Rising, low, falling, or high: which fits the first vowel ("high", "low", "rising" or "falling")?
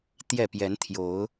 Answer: falling